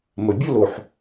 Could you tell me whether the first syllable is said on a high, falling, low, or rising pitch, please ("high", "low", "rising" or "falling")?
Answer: low